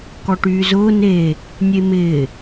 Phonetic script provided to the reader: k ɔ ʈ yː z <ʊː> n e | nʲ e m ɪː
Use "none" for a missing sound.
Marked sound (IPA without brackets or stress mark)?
ʊː